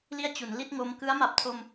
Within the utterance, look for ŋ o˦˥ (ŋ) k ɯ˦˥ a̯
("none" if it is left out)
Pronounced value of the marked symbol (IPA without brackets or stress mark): m